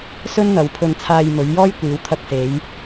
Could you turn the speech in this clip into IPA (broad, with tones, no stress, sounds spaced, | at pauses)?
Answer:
s ɵ˥ n n̪ ɐ˨˧ w pʰ ɵ˧ n t͡sʰ aː˧ j m ɵ˨˧ ɥ j ɔː˥ j kʷ iː˨˧ w t̪ʰ ɐ˧ k̚ s e˨˧ j